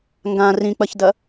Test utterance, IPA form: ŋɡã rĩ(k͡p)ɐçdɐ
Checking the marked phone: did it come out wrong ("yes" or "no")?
no